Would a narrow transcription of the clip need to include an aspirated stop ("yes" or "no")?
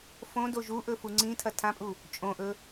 yes